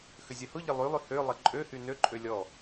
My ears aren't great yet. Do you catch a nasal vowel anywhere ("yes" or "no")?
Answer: no